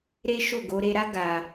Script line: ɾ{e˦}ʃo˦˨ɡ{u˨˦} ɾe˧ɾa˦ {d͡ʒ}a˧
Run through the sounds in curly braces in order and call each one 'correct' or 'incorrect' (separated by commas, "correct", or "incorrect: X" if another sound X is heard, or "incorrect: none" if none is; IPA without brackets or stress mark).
correct, incorrect: o˨˦, incorrect: ɡ